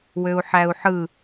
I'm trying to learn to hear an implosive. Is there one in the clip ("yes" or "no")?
no